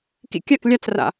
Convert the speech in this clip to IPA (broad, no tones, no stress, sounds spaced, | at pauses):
k ḭ kʲ æ k lʲ a t͡s r a̰